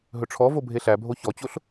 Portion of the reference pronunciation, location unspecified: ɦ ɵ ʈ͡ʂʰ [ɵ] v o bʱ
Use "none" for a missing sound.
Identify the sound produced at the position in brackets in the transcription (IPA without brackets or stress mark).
ɔ